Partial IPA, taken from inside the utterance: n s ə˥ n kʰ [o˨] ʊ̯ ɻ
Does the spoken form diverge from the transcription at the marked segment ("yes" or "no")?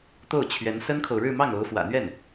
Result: no